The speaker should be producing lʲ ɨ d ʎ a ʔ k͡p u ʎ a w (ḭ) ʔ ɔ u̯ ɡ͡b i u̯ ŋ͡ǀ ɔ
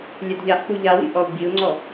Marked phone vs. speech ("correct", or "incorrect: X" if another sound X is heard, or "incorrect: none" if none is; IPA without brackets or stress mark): correct